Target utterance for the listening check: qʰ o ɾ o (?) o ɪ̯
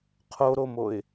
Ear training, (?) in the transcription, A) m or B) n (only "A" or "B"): A